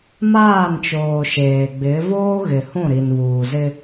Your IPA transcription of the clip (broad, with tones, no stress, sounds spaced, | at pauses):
m aː˦˨ n t͡ʃ oː˨ ʃ eː˨ ɡ͡b ɪ˨˦ v oː˦ ɣ ɪ˨ h ũ˦˨ ɾ i˨ n β uː˨ z ɪ˦